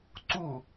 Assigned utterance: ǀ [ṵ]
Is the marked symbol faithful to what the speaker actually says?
no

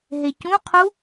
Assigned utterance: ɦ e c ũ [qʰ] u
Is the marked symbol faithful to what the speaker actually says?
yes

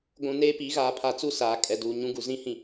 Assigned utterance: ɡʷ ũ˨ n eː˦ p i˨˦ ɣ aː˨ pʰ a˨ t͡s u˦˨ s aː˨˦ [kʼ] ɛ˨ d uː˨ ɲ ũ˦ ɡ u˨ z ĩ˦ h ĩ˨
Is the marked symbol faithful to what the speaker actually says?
yes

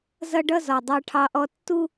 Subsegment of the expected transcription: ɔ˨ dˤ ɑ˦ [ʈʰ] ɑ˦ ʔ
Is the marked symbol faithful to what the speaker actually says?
yes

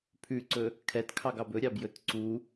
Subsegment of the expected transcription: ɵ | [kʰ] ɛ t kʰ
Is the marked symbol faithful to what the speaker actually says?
yes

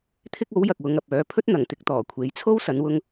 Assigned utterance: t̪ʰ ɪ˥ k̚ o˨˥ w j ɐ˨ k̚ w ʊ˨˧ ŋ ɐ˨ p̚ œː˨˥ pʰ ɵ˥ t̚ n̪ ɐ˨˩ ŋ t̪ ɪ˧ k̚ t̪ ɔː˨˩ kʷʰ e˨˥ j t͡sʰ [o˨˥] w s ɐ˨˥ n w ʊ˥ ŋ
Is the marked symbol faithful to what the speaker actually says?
no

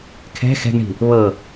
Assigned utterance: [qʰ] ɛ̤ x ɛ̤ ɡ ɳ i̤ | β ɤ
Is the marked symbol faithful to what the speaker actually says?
no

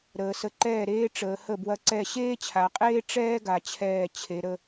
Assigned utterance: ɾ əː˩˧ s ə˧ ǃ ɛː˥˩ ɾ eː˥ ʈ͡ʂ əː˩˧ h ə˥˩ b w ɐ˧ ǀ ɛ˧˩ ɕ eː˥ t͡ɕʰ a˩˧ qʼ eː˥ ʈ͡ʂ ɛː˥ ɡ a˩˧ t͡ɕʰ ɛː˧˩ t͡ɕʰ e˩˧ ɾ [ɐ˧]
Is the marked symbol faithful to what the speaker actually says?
no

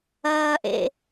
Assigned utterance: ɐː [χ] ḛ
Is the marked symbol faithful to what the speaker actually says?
no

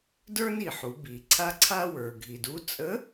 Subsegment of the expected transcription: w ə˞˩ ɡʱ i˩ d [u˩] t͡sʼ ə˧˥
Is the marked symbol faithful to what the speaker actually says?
no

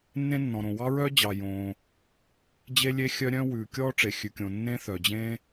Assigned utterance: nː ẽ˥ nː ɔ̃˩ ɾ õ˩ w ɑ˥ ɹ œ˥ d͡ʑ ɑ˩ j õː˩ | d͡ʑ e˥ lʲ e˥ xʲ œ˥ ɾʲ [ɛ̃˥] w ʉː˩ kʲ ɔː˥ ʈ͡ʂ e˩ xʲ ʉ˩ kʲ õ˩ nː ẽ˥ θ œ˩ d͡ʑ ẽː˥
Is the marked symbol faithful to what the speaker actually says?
no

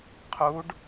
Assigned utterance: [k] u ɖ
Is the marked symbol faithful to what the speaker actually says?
no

